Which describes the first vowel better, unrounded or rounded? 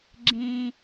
unrounded